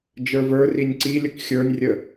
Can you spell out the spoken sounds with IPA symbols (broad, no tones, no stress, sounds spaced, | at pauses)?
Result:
d͡ʒ ə˞ v ə˞ r i nʲ ǀ i lʲ ə k xʲ ə˞ nʲ rʲ ə